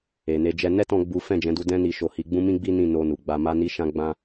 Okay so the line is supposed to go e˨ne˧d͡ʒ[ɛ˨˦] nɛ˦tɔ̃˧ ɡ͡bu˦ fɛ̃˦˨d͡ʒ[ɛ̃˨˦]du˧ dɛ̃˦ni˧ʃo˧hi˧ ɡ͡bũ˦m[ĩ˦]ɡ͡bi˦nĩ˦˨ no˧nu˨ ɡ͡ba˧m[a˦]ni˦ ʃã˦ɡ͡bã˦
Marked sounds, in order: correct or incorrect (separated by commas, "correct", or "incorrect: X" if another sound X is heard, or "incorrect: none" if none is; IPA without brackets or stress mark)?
incorrect: ɛ˧, correct, correct, correct